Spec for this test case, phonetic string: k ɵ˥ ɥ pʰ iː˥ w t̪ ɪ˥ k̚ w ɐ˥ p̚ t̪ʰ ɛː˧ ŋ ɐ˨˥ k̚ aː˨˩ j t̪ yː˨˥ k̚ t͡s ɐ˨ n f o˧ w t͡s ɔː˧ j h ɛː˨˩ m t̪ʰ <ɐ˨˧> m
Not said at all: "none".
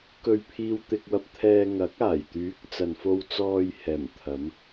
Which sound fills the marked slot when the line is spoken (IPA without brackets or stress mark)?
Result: ɐ˨˧